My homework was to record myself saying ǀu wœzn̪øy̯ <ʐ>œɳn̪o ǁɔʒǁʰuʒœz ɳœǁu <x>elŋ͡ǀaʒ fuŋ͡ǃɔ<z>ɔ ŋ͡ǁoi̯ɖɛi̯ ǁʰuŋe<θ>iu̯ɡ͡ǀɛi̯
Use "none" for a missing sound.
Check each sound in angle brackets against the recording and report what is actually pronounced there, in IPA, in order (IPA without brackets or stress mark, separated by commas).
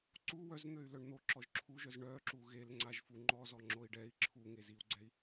l, ɣ, z, z